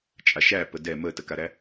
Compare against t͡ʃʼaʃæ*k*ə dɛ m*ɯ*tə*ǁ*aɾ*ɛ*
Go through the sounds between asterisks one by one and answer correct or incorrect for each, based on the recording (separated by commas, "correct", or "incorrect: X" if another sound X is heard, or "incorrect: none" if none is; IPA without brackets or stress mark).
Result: incorrect: p, incorrect: ə, incorrect: k, incorrect: æ